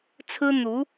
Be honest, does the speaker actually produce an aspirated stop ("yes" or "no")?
yes